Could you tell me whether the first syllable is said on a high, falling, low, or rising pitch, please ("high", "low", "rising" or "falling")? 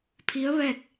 rising